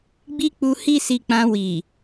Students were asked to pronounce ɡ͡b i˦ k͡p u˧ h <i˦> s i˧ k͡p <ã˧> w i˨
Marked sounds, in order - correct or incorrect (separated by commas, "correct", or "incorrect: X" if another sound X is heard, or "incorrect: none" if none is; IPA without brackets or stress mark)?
correct, correct